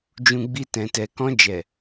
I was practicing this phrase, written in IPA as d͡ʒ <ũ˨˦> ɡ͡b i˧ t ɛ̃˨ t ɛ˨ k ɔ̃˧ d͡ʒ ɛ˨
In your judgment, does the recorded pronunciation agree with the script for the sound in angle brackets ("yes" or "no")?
no